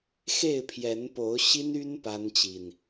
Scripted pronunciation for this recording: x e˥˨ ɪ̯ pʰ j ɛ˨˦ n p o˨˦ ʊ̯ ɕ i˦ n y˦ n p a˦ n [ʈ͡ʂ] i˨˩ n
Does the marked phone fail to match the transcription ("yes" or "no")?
yes